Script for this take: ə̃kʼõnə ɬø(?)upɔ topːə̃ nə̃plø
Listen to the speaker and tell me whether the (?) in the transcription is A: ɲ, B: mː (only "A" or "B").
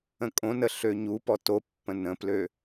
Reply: A